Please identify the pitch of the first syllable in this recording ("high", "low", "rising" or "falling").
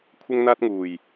high